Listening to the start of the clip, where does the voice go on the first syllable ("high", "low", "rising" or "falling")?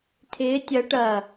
rising